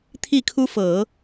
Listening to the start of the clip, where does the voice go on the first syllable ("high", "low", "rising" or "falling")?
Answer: falling